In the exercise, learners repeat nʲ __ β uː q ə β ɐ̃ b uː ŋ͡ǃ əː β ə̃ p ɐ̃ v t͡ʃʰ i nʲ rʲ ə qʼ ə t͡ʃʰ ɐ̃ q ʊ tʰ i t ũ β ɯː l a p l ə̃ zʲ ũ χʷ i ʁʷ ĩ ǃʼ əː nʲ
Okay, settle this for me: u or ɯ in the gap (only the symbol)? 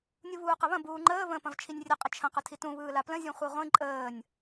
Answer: u